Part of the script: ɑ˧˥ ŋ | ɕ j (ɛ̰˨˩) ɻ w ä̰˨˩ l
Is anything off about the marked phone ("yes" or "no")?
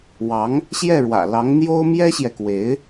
yes